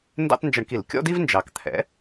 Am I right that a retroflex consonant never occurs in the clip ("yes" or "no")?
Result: no